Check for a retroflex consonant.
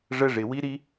present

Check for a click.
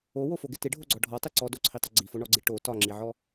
present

